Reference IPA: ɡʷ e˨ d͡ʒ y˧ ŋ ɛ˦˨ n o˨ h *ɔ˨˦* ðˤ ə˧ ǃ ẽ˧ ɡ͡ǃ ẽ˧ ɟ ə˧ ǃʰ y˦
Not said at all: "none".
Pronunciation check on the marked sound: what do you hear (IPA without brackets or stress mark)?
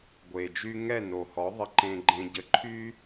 ɔ˨˦